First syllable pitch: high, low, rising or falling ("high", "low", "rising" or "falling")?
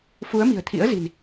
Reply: rising